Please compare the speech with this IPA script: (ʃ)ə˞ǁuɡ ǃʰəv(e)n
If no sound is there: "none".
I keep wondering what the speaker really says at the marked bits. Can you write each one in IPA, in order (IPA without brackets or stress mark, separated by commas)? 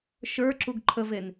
ʃ, e